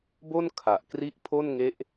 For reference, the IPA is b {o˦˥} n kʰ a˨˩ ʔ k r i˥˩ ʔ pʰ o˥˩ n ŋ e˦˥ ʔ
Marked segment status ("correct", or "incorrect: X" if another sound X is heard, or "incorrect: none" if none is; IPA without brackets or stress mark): incorrect: o˥˩